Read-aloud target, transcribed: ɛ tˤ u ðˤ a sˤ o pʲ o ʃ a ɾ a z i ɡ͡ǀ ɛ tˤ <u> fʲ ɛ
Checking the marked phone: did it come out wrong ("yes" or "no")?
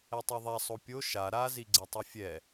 no